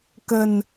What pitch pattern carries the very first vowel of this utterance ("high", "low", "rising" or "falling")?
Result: low